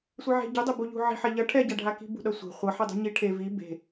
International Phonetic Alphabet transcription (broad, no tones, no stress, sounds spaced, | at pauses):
sʷ e ʕ e̤ ɟ u dˤ e b u ʎ ṳ ʕ i̤ ħ ɛ ʎ ʌ ʈʰ ɛ ɟ a ɖʱ a k i̤ b ṳ ɗ ʌ sʷ e̤ χʷ ʌ ħ i dˤ ṳ ɲ i ʈʰ e v i b e̤